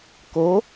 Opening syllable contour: rising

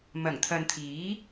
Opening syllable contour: low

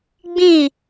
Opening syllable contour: falling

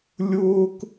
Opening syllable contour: high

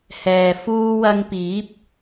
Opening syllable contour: low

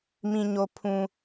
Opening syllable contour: low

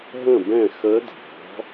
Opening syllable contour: falling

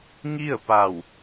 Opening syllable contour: falling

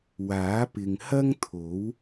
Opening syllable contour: rising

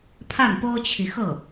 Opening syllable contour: falling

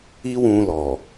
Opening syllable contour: high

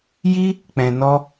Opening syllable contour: high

